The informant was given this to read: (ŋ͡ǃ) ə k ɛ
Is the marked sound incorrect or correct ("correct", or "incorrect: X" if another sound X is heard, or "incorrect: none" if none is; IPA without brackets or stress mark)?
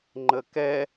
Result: correct